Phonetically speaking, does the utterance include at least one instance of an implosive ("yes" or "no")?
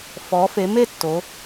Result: no